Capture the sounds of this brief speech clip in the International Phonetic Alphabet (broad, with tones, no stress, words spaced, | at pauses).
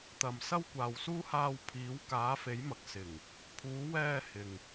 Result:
t̪ɐ˧m sɐ˥wkʷaː˨wsuː˥ haː˧wpʰiː˨˧w kaː˨˧fe˨˧jmɐ˨k̚ sɪ˨˩ŋ | pʰuː˨˧wɛː˧ hɪ˨ŋ